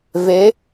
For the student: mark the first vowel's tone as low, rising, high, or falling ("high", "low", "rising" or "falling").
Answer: rising